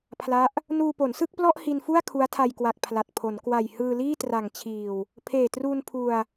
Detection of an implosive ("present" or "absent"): absent